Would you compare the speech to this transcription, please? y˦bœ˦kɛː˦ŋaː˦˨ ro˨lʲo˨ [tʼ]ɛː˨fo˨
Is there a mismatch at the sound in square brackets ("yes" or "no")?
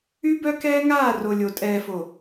no